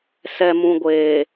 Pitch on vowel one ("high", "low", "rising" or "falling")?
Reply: low